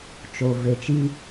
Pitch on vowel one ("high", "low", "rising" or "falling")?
low